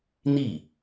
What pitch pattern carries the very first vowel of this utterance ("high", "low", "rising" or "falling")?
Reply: falling